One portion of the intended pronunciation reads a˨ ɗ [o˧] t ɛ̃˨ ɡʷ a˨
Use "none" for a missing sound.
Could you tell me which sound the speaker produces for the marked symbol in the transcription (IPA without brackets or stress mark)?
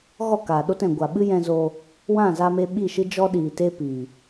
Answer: o˧